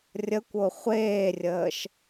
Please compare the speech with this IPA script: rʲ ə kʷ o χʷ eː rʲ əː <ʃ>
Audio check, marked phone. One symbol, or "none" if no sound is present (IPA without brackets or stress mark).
ʃ